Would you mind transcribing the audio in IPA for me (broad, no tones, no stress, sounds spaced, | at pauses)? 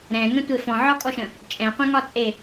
ɾ ɛ̃ ŋ ə̃ tʷ e f ɔ̃ ʕ ɒ kʼ ɔ ʃ ə̃ | t͡ʃʼ ɛ̃ qʷ ɛ̃ ŋ ɒ t͡sʼ e